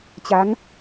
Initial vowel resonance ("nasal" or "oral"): oral